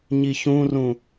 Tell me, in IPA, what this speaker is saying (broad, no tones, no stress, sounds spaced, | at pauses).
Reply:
ɲ i ç ũ r ũ